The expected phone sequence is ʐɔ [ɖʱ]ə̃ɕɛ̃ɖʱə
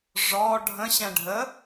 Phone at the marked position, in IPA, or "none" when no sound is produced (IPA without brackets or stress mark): ɖʱ